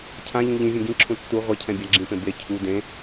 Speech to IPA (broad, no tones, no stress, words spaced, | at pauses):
cʰãʎũ ʎĩvʲẽ ɡĩǁʰũ tːu ʁʷɛcʰɛ̃bʲa ɡ͡ǁĩpẽ be cʰu dẽ